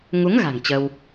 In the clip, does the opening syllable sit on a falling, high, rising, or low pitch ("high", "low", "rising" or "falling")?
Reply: rising